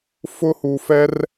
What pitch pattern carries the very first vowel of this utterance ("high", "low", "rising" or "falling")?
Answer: high